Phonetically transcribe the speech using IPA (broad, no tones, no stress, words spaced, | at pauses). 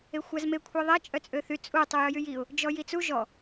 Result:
exʷazme kʷʰeðˤɛ t͡ʃʼœt͡sʼøθy t͡sʼu tˤujœjyjiʊ̯ | d͡ʒɔjit͡su ʒɔ